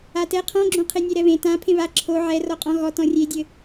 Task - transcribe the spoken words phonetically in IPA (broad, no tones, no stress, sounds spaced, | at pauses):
a t ɛ qʰ ɔ̃ ɡ͡ǁ õ qʰ e nʲ e ɾ ɛ β ẽ t ã pʰ ẽ β a ǁʰ o ʕ ɛ r ɔ qʼ ɔ̃ ɣ ɔ t ɔ̃ rʲ e dʲ ɘ